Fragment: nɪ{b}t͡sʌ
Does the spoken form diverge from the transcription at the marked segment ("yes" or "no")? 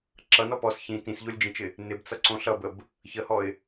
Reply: no